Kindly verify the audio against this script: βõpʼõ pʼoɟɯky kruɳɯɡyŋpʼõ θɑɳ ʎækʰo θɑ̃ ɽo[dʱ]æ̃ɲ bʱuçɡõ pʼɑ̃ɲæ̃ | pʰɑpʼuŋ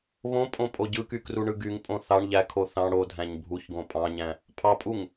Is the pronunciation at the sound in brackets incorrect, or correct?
correct